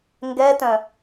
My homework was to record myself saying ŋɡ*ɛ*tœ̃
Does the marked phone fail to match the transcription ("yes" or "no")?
no